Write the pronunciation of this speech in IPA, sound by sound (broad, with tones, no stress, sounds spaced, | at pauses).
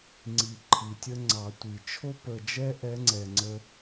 ŋ͡ǀ i˨˩ ǃʰ i˨˩ tʲ ə˧ ŋ͡ǀ ɑ˨˩˦ tʷ i˨˩ t͡ʃʰ o˧ p ə˨˩ d͡ʒ ɛ˧ ʔ ɛ˧˥ ŋ͡ǀ ɛ˨˩ ŋ͡ǀ ə˧